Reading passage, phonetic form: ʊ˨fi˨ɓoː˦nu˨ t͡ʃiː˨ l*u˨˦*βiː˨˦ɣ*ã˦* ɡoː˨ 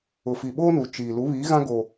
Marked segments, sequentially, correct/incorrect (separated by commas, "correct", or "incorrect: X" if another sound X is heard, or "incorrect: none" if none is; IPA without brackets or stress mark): correct, correct